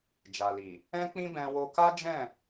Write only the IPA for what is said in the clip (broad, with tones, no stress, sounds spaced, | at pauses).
d͡ʒ a˨ l i˨ | ɛ̃˦ k͡p ĩ˦ b ɛ̃˧ w o˧ k a˦ d͡ʒ ɛ̃˦˨